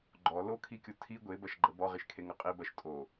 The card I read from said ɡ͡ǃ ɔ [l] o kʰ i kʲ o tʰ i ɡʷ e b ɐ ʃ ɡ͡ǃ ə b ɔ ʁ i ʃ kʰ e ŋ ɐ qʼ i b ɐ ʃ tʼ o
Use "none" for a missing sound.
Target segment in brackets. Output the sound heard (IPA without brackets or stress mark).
l